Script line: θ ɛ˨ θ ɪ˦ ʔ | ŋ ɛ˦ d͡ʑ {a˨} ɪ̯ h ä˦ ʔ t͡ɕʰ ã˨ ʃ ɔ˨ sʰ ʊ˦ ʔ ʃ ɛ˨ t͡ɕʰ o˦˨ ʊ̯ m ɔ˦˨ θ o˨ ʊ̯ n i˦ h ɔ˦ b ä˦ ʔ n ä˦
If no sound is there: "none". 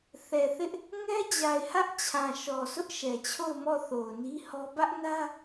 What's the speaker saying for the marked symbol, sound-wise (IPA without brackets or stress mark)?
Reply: a˨